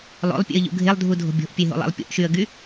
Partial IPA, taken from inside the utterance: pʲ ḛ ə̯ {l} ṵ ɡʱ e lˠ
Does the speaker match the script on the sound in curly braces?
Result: no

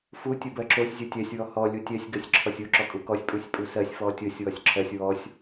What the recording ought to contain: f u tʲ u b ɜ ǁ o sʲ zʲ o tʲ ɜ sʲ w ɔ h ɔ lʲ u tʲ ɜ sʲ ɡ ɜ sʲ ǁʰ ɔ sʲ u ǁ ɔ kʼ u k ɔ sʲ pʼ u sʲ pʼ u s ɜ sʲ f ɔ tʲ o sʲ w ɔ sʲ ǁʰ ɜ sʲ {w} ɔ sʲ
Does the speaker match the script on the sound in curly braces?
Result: yes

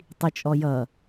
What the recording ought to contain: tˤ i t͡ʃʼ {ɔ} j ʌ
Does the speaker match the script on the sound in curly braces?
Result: yes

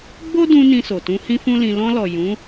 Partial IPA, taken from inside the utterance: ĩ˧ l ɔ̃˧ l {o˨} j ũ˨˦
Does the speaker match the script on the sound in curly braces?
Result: no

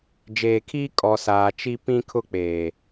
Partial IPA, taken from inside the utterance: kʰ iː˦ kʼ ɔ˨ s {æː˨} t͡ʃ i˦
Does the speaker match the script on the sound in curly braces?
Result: no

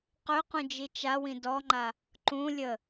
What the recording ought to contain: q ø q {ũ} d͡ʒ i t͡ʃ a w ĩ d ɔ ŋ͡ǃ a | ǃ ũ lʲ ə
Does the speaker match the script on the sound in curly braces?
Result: yes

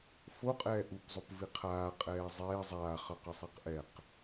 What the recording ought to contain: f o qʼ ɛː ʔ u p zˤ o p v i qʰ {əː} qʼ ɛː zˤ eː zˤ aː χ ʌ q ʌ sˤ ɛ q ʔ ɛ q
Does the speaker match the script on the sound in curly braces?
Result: no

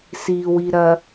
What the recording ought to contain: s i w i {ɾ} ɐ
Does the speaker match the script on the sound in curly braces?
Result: yes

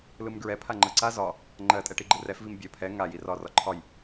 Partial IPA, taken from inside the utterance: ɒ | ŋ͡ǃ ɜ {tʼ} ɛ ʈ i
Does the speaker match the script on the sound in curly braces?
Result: yes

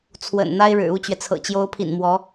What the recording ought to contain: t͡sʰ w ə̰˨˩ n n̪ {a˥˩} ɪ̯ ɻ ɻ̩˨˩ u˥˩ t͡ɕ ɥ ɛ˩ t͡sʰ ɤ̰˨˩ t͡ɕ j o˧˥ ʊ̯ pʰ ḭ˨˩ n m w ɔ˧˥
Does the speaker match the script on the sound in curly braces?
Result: no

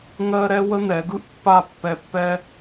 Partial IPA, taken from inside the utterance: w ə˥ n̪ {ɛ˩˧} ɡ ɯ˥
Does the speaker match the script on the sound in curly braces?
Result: yes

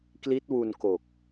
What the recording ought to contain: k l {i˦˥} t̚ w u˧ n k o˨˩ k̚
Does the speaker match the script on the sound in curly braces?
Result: yes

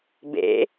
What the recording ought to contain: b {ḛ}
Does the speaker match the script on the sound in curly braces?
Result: yes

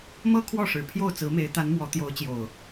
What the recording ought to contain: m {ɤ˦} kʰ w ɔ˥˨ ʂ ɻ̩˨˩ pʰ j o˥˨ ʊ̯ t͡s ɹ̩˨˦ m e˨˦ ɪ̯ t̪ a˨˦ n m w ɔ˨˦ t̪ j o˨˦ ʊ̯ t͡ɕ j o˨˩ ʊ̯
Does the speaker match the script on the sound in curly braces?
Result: yes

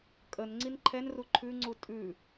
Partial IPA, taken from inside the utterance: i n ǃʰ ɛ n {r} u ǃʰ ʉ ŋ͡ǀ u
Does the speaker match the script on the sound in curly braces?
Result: yes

